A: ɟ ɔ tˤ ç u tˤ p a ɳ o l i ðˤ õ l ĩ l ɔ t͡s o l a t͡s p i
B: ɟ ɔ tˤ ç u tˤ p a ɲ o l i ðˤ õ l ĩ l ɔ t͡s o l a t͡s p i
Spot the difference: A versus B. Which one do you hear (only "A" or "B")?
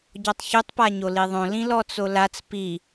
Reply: B